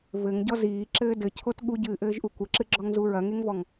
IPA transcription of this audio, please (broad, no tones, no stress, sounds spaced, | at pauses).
v ɘ ŋ ɟ ɔ z iː ǁ ɘː d ɘ cʰ o t ɠ u ɟ ɨː ʔ ɘː ʒ ʔ u kʷ ɘ ǁ ɨ ɡ͡ǁ ɔ ŋ z u ɹ ɐ ŋ e ŋ v ɔ ŋ